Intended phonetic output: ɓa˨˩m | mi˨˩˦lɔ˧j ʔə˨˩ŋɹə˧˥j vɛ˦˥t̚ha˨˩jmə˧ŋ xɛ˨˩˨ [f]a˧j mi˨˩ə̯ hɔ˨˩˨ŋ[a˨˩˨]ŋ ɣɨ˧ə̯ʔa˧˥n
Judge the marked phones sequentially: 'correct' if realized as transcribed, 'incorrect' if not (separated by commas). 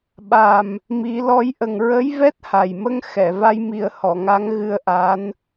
incorrect, incorrect